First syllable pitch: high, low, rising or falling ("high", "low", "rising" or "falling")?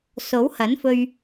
rising